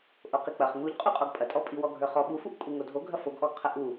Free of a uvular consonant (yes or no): no